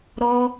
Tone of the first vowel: high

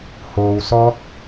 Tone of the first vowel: low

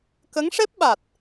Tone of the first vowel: rising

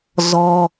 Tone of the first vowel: high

